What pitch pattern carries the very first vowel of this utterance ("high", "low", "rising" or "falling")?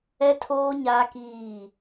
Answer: high